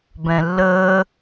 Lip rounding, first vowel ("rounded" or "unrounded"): unrounded